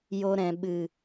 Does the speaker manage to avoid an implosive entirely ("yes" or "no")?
no